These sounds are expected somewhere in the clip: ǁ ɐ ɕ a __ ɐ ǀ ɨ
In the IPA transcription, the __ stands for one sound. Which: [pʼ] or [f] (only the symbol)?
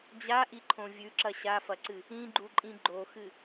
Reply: f